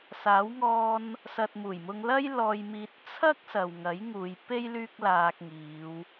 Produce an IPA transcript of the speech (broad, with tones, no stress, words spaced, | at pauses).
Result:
saː˨˥wŋɔː˧n | sɐ˨t̚muː˨˩jmʊ˧ŋlɐ˥j lɔː˧jmiː˧t̚ t͡sʰɐ˥k̚ sɐ˨wŋɐ˨˥jŋuː˨˧jpe˥j lyː˥k̚laː˧k̚ŋiː˨˧w